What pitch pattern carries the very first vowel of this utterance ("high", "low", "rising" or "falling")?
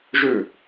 falling